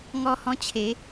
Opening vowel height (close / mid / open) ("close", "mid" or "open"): mid